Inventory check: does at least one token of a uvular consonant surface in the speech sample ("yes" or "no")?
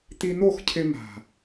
no